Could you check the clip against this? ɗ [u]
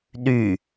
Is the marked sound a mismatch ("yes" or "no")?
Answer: yes